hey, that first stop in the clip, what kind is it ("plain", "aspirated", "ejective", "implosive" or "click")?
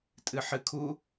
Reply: ejective